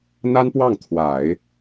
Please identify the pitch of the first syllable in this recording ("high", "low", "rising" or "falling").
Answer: high